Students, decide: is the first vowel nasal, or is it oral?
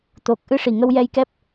oral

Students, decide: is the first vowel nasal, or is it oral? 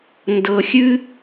oral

